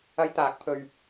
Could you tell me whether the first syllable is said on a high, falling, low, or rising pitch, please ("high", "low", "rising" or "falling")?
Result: high